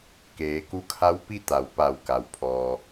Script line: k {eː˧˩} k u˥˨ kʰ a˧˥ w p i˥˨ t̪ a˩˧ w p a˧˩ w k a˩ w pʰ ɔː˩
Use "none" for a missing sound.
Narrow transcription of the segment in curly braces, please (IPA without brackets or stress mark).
eː˩˧